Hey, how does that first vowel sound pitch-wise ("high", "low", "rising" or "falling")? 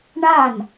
falling